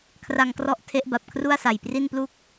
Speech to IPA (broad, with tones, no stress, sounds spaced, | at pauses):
kʰ r a˧ ŋ k r ɔ˦˥ ʔ tʰ e˦˥ ʔ b a˨˩ p̚ kʰ r u˥˩ a̯ s a˨˩ j p r i˥˩ n p l u˥˩ k̚